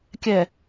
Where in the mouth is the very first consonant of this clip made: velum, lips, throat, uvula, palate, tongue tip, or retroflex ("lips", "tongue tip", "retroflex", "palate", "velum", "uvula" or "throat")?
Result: velum